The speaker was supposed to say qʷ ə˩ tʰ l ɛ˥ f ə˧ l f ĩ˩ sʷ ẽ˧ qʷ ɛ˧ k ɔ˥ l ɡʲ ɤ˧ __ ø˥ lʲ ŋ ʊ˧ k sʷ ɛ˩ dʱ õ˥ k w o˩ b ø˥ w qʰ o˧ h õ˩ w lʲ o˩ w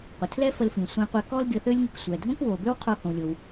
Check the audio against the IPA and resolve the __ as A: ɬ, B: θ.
B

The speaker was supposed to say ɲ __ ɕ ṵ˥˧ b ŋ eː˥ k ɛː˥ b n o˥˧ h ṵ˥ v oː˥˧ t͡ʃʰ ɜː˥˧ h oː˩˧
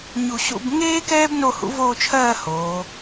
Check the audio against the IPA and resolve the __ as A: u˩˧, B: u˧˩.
B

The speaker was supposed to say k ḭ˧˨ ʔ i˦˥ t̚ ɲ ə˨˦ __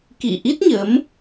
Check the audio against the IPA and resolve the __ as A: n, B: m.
B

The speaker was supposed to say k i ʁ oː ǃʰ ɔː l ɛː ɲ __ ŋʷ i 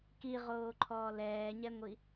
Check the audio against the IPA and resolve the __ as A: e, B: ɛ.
B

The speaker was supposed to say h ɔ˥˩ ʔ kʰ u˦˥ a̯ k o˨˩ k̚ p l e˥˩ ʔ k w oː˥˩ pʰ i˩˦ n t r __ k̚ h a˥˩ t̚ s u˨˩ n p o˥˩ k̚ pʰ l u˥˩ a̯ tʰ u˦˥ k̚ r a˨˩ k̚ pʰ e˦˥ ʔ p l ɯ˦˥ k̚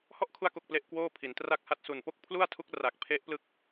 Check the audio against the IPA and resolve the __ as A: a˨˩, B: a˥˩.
B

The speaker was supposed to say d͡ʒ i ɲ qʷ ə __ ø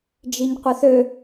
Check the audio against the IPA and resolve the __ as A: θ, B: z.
A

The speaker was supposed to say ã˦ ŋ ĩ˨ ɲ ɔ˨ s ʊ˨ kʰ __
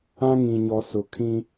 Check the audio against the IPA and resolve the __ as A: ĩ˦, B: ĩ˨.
A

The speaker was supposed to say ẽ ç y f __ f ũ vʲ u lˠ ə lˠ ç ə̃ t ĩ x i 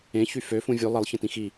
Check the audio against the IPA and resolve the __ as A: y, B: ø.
B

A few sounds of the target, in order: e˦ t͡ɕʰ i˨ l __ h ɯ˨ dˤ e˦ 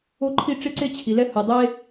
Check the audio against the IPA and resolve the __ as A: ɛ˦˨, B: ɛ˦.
B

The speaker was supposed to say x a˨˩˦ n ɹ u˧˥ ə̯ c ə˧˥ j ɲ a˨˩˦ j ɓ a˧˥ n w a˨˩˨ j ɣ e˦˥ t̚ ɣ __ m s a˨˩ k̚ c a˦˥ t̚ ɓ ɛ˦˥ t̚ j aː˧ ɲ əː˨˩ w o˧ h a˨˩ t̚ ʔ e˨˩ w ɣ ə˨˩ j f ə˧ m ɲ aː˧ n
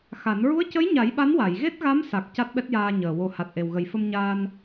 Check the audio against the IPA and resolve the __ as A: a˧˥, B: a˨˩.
A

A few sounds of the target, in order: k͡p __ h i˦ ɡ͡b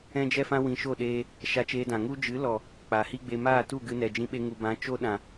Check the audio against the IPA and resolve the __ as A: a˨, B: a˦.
A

